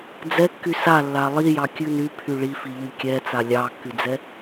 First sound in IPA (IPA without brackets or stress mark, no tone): d͡z